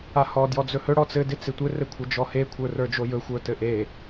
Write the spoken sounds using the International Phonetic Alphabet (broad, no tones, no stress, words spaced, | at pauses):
ahɔ djɔd͡zɵhɵ ɽɔt͡sɘ dɪt͡sɪtʷɘ rɘkʷʰɘd͡ʒɔhe kʷʰə˞rə˞d͡ʒojɵ xʷə˞tɘʔe